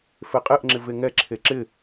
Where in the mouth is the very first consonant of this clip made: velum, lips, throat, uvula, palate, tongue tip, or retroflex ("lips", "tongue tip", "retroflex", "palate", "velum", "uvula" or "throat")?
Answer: lips